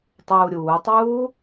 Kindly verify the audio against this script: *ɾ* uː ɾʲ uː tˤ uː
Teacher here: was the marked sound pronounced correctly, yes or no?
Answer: no